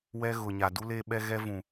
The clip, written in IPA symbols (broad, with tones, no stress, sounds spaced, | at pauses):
w ɛ˦ ɣ ʊ˨ ɲ a˨ d u˦ l e˦ ɓ ɛ˦ ɣ ɛ˦ v ũ˨